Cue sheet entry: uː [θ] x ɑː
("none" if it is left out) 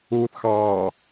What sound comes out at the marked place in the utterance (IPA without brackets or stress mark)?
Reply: θ